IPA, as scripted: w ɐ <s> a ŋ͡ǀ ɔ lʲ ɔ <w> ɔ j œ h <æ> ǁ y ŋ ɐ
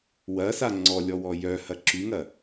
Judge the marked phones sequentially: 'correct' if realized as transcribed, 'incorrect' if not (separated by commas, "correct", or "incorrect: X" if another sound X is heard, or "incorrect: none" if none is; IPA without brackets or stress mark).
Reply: correct, correct, incorrect: ɐ